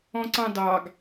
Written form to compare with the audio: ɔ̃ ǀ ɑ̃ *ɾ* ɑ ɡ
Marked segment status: incorrect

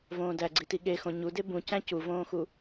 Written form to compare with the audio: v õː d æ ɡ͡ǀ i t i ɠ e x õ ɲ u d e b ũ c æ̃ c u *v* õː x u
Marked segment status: correct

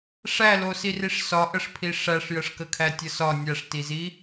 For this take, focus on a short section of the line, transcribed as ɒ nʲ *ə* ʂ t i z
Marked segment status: incorrect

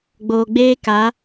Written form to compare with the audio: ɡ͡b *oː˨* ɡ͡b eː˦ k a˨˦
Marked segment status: correct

